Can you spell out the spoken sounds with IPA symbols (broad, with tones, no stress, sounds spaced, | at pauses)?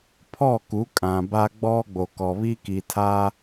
pʰ ɔ˦˨ k u˨˦ kʼ ã˨ b a˦ ɡ͡b ɔ˦ ɡ͡b o˨ k ɔ˨ β i˦ k i˨ tʰ a˦